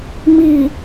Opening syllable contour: low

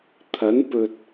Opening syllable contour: rising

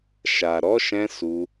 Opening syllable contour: low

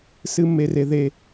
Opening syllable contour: high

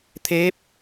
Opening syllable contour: rising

